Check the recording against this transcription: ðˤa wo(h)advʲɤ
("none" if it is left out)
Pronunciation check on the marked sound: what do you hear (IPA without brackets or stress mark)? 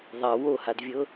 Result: h